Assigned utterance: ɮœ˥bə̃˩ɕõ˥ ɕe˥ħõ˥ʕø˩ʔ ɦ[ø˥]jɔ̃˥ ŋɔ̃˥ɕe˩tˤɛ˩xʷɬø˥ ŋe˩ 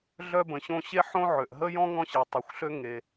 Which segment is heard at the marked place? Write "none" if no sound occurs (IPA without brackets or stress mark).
ə˥